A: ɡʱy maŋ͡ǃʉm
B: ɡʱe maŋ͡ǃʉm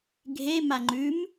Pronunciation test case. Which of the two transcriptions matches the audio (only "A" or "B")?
B